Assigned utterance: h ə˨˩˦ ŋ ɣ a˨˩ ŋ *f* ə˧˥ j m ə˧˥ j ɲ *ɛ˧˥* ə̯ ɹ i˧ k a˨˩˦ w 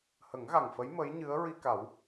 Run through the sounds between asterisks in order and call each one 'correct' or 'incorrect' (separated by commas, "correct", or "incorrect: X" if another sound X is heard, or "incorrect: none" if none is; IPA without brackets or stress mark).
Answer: correct, incorrect: ɨ˧˥